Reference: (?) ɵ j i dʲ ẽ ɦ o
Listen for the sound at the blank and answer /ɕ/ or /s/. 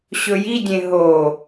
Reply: ɕ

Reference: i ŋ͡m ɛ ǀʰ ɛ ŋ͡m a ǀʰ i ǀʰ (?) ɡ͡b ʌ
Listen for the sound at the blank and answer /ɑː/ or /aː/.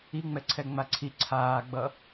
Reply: aː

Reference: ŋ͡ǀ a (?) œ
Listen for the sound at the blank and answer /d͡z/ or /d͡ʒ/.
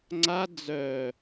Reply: d͡z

